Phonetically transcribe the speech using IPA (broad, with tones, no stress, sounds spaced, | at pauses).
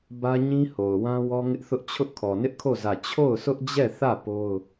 b ä˦ ɲ ĩ˦ h o˨ ʊ̯ w ã˦ w ɔ˦ ŋ ɪ˦ ʔ θ ʊ˦ ʔ t͡ɕʰ ʊ˦ ʔ kʰ ɔ˨ n ɪ˦ ʔ kʰ o˦˨ z ä˦˨ t͡ɕʰ o˦˨ ʊ̯ s ʊ˦ ʔ d͡ʑ ɛ˦˨ θ ä˦˨ p o˦ ʊ̯